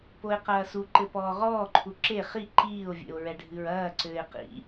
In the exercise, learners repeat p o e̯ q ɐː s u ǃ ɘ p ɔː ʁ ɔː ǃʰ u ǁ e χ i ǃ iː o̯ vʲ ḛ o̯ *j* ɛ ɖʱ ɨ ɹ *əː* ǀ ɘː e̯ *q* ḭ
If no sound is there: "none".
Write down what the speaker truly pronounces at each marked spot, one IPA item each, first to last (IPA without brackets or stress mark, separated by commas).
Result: ɹ, ɐː, q